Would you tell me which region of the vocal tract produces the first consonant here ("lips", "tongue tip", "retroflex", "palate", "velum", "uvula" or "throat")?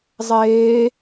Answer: tongue tip